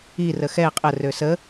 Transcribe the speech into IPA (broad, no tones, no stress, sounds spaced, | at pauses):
i r ə x ɛ qʼ ə r ø s ə